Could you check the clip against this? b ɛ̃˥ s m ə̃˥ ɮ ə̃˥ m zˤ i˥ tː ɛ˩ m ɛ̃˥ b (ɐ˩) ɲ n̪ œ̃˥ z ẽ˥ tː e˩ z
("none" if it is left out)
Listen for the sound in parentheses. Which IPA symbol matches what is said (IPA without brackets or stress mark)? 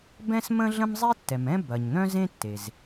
ɐ˩